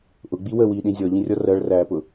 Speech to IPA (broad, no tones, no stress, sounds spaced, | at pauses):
ʔ ʊ ɡ͡b i w ə w iː ɗ ĩ zʲ ɔ ʎ ĩ rʲ ɔ r ɜ ɭ r æː p ʊ